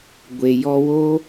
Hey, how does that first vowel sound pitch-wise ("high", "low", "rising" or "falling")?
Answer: low